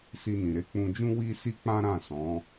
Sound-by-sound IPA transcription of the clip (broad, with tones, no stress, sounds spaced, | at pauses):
s i˧ n ĩ˨ ɾ e˨˦ k͡p ũ˧ d͡ʒ ũ˦ w i˦ s i˦ k͡p ã˦ ɾ ã˦˨ s ɔ̃˨˦